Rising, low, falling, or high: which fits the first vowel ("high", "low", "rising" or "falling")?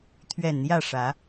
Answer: low